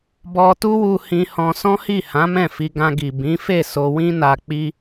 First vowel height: mid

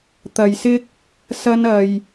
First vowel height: low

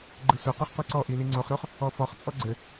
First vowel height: high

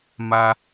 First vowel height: low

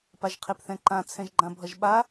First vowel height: low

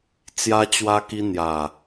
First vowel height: low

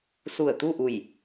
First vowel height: high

